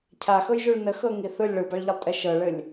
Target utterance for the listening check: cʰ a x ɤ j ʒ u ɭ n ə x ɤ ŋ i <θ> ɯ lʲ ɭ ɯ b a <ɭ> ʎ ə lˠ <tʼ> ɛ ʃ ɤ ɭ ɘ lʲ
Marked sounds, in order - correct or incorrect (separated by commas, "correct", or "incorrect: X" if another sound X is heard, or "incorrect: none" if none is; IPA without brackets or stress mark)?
correct, correct, correct